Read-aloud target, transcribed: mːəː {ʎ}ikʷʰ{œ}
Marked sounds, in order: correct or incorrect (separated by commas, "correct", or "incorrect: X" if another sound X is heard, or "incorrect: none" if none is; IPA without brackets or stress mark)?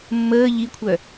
correct, correct